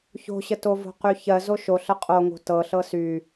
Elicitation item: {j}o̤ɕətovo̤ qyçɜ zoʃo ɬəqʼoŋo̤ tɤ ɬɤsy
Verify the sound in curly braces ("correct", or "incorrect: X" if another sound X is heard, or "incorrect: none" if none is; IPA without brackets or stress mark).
incorrect: ç